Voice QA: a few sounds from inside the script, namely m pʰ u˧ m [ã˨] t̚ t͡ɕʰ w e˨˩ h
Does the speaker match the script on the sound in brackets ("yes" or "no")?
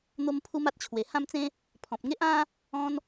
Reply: no